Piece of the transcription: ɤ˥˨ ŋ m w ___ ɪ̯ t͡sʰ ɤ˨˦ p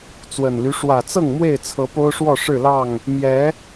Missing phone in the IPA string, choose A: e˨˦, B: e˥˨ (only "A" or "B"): B